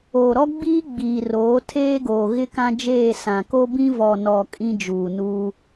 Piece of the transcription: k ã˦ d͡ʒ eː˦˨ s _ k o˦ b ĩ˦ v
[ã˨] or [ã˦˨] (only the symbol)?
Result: ã˨